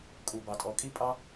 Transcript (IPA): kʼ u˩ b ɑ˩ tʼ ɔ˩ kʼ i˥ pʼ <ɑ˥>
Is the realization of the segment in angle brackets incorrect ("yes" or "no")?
no